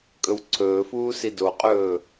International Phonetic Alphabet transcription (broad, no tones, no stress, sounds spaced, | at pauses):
kʼ ɵ w ǀʰ ɵː f uː s i d o qʼ ɵː